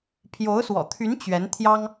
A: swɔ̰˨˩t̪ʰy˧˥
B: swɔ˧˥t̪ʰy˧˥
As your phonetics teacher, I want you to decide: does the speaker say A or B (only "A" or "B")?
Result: A